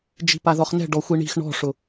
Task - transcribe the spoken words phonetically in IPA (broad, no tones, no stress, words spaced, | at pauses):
d͡ʒi̤paðɔχnɛ̤ ɖɔxʷiɳi̤x ɳɔ̤ʂʊ